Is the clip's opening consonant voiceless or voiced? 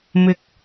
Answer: voiced